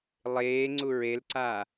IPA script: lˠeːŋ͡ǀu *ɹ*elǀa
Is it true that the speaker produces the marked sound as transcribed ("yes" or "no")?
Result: yes